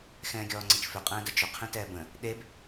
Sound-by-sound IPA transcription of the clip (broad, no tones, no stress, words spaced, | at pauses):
xɛ̃ːɡʲɔːŋ͡ǀət͡ʃfʏ qʼɛ̃ːdəd͡ʒʏ qʰẽtɛːbə̃ | ɗeb